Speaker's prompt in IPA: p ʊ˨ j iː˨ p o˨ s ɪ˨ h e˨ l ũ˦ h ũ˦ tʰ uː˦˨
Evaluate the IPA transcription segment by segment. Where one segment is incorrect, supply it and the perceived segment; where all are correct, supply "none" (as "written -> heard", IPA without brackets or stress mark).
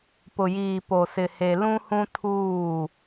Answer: none